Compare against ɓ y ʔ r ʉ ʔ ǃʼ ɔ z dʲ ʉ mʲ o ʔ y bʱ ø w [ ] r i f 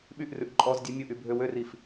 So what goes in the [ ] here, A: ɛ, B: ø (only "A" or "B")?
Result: B